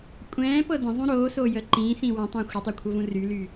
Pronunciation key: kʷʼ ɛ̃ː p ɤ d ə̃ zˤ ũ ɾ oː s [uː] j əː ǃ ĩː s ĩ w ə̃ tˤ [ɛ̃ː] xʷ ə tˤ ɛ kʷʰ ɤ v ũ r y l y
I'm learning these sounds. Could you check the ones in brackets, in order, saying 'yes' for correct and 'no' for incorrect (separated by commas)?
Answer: no, no